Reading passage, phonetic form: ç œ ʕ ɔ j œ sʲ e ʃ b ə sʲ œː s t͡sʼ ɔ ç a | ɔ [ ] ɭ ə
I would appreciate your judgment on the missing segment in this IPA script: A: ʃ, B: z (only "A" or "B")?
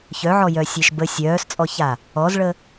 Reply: B